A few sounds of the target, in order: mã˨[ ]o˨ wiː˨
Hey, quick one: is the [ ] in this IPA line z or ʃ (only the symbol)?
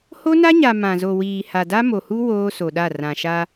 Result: z